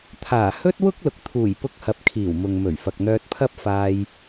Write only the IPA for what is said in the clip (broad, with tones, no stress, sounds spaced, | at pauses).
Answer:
t̪ʰ aː˨˩ h ɵ˥ t̚ w ʊ˥ k̚ l ʊ˨ k̚ t̪ʰ uː˨˩ j p ʊ˧ k̚ h ɐ˨˥ p̚ kʰ iː˨˩ w m ʊ˨ ŋ m ɵ˨˩ ɥ f ɐ˨ k̚ n̪ œː˧ t̚ pʰ ɐ˥ p̚ f aː˧ j